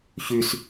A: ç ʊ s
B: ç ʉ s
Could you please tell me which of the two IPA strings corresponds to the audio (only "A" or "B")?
B